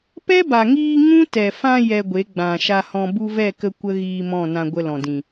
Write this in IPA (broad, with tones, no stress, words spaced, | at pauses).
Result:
pɛ˦ba˨ŋiː˧ ŋũ˦tɛ˨fã˧ jɛ˧ɡʷe˨˦ ɡ͡bã˨ʃa˧hɔ̃˧ bu˧vɛ˦˨kə˧ kʷə˦ɣiː˧ mɔ̃˦˨nã˧ɡʷə˧ lɔ̃˨dĩ˨